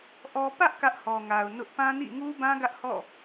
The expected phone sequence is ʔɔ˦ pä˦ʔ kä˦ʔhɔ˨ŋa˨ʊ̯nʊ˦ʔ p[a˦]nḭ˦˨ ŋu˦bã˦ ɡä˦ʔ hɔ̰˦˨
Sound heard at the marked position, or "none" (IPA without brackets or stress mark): ã˦